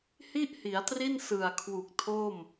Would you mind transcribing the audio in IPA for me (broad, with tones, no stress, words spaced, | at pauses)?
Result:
hi˥˩ʔhi˩˦a̯tri˥˩n sɯ˨˩a̯kʰwu˨˩k̚tʰo˥˩m